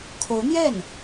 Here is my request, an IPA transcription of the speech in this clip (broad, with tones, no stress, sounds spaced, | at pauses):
kʰ o˧˥ ʊ̯ n̪ j ɛ˥˩ n